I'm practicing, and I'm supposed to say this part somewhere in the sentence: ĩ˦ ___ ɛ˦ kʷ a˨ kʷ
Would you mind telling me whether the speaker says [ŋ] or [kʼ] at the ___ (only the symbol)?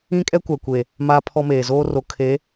kʼ